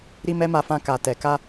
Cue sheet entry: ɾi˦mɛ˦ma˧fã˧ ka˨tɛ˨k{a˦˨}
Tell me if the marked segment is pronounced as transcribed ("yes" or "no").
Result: no